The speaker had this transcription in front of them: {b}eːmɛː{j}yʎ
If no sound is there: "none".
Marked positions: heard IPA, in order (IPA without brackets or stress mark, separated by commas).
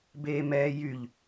b, j